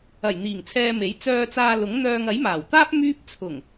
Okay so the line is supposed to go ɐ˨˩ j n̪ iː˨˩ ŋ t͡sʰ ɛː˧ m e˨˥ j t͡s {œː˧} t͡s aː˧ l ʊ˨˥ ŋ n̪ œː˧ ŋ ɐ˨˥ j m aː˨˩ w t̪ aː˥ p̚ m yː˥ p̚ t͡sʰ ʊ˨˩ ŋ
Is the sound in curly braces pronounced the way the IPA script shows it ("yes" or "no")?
yes